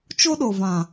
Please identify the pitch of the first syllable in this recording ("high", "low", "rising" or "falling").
high